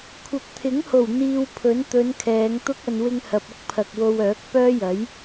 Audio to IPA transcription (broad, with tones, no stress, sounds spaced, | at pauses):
kʷʰ ɐ˨ p̚ t̪ʰ ɪ˨˥ ŋ h o˨˩ w n̪ iː˧ w pʰ ɵ˨˥ n t̪ ɵ˨˧ n kʰ ɛː˨˧ ŋ t̪ ʊ˥ k̚ ɐ˨ n w ɪ˧ ŋ h ɐ˨ p̚ ʊ˥ k̚ pʰ ɐ˨ k̚ w o˧ w œː˨˥ k̚ p œː˥ j ɐ˨˥ j